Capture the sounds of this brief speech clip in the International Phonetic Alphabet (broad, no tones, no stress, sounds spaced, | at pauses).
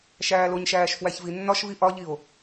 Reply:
ʃ æː l o ɲ ʃ æː ʃ f w æ ç v i nː ɒ ʃ v i ʔ ɒ ʎ i o̯